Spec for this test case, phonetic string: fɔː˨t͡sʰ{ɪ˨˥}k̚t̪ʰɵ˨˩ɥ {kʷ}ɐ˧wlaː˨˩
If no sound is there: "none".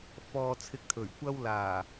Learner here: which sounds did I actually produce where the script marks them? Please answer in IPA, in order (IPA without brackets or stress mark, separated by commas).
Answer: ɪ˨˥, kʷ